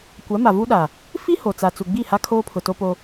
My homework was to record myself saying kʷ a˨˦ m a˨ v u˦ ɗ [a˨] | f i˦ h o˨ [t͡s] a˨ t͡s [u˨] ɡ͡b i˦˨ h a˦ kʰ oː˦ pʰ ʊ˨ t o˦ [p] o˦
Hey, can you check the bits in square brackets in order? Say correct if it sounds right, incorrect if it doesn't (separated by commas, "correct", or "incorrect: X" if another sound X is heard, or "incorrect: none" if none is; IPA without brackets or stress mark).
correct, correct, correct, correct